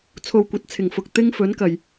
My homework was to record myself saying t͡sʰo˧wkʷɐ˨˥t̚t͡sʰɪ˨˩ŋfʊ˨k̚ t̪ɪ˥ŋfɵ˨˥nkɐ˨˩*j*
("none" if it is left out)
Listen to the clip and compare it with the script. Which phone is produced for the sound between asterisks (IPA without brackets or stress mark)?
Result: j